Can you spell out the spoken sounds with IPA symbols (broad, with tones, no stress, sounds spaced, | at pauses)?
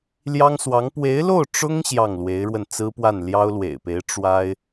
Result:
l j ɑ˥ ŋ s w ɑ˧˥ ŋ p w e˧˥ ɪ̯ l o˥˩ ʊ̯ ʈ͡ʂ ʊ˥ ŋ ɕ j ɑ˥˩ ŋ l w e˧˥ ɪ̯ ɻ w ə˧ n t͡s ɹ̩˥ p w a˥˩ n l j ɑ˥ ʊ̯ l w ḛ˨˩ ɪ̯ p e˧˥ ɪ̯ ʈ͡ʂ w a˥ ɪ̯